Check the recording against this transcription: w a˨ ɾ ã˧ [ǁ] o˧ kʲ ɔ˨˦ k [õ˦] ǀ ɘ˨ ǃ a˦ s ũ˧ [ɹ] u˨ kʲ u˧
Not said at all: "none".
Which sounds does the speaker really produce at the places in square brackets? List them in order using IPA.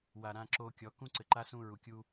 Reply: ǁ, ũ˦, ɹ

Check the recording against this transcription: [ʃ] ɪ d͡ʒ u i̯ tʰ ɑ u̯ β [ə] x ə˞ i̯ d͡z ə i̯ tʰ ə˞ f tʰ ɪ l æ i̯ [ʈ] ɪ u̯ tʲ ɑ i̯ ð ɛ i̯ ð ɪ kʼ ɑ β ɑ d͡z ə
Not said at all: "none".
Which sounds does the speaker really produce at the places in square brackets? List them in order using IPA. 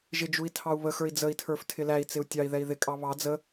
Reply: ʒ, ə, t͡s

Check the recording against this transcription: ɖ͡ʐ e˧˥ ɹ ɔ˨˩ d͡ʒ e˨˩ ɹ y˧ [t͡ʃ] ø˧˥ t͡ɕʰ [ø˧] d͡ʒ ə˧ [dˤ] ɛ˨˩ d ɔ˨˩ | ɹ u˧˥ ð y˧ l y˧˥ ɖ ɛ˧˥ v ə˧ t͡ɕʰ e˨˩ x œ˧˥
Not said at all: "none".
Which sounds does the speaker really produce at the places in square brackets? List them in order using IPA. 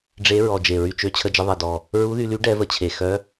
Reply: t͡ʃ, ə˧, ðˤ

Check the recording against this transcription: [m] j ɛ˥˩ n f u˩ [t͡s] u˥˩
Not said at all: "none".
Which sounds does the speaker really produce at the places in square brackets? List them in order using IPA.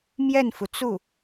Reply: m, t͡s

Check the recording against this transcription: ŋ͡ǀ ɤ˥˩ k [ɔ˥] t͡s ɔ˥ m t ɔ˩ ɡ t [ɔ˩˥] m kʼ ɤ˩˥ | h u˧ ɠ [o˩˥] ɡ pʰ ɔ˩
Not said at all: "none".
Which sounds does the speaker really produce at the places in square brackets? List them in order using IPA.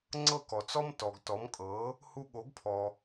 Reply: ɔ˩, ɔ˩˥, o˩˥

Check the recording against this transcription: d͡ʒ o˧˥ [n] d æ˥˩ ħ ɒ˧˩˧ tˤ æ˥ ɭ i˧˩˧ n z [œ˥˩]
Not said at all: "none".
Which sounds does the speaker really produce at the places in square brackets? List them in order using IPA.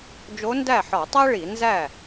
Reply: n, æ˥˩

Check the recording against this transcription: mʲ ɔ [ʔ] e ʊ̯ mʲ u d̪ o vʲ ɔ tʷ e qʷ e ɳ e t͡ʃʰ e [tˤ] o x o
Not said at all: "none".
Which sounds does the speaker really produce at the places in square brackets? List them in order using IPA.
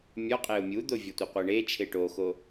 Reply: qʼ, ʈ

